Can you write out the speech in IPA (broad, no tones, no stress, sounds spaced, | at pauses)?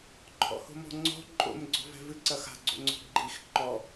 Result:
ǃʰ ɔ̰ h o̤ m ɔ̤ ŋ͡ǀ ɔ̤ ǃʼ o̰ m ɡ͡ǀ ɔ̤ v ɛ̤ v ɨ ǀ ɐ x a̤ ɡ͡ǀ o̰ ŋ͡ǀ ɔ̤ ɡ͡ǃ i x ǃ ɔ